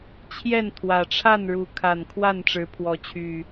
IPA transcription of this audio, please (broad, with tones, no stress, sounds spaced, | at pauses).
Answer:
t͡ɕʰ j ɛ˥˨ n t̪ʰ w ä˨˩ ʈ͡ʂʰ a˥˨ n ɻ u˨˦ kʰ a˨˩ n kʰ w a˥˨ n ʈ͡ʂ ɻ̩˨˦ pʰ w ɔ˨˦ t͡ɕʰ y˨˩